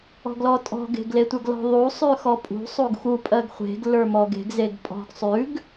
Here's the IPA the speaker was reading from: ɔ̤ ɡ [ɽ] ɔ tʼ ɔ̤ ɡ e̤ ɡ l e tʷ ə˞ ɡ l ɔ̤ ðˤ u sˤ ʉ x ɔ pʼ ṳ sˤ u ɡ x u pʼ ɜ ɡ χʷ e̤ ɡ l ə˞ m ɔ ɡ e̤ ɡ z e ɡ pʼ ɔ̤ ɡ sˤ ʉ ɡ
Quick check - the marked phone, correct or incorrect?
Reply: incorrect